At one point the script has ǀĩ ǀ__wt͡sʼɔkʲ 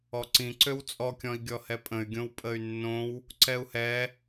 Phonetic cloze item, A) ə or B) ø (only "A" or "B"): B